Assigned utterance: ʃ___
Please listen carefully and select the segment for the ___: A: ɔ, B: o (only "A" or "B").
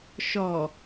A